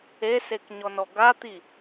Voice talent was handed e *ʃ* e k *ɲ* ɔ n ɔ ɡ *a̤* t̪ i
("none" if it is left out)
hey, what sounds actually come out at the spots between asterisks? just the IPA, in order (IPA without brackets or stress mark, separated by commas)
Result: s, ɲ, a